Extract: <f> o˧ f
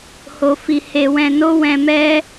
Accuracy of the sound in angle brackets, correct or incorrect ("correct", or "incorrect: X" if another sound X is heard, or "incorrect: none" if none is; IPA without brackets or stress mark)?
incorrect: h